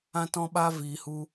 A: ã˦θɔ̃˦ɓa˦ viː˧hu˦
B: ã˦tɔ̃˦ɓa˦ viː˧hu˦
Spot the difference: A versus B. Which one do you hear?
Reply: B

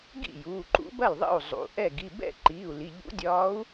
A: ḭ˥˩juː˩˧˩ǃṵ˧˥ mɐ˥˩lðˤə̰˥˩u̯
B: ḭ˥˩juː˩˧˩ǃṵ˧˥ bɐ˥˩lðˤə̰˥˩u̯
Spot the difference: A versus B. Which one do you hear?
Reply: B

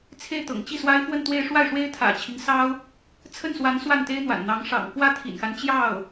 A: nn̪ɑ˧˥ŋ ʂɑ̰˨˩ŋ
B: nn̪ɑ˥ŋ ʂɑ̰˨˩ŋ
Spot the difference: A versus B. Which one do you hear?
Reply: A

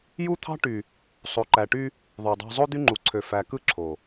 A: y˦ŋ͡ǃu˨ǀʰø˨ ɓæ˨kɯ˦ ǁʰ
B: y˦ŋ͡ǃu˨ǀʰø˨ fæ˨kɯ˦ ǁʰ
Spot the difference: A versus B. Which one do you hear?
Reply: B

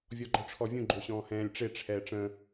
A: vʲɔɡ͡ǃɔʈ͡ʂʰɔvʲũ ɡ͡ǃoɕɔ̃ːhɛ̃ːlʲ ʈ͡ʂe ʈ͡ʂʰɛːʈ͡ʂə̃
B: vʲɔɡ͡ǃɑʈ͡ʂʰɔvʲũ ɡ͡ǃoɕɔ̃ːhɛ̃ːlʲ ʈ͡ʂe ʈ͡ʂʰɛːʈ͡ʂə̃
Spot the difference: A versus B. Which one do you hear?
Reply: A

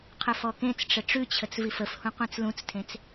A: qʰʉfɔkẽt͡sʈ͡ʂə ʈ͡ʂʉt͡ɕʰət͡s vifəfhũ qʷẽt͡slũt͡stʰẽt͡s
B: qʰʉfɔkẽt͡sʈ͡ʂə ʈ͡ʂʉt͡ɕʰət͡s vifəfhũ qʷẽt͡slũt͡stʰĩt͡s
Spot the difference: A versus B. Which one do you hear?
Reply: A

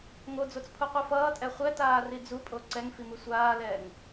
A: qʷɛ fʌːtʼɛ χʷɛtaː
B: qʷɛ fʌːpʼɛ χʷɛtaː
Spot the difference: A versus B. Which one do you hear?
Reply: A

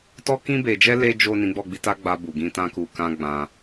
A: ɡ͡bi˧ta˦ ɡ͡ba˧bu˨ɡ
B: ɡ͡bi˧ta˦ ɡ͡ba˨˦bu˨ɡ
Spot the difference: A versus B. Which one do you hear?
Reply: A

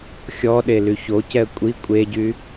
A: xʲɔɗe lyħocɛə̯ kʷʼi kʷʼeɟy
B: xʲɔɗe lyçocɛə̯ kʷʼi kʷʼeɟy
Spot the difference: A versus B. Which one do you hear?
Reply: B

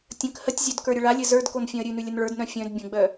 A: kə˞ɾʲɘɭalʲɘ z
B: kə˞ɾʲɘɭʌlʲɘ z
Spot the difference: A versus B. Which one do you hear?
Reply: A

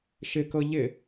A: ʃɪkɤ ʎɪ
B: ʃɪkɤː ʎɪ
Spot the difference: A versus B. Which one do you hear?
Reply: A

